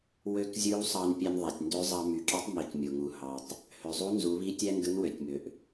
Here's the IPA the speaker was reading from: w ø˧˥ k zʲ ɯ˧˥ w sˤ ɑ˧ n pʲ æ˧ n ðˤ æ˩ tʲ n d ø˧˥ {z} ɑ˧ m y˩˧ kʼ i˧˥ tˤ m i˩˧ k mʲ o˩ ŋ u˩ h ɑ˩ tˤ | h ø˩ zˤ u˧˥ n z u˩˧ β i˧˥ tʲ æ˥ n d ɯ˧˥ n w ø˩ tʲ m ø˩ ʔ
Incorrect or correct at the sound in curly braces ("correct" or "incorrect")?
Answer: incorrect